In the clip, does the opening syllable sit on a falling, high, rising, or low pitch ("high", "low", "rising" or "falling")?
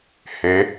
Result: rising